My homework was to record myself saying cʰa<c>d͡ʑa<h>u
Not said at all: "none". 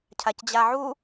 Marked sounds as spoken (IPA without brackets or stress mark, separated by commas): c, ʕ